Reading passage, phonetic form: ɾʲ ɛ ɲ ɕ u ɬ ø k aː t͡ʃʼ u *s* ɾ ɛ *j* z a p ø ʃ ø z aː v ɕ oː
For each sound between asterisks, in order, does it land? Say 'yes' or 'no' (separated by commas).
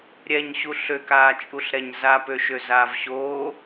no, no